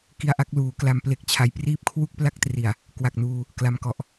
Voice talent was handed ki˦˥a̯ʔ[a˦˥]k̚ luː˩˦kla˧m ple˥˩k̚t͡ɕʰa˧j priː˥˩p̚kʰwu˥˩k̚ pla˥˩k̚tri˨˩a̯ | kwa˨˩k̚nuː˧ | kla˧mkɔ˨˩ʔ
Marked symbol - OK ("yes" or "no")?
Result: yes